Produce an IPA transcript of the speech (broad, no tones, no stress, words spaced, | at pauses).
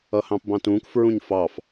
ʌhɑ̃pbɑ̃tũːk fɹũɲfɑf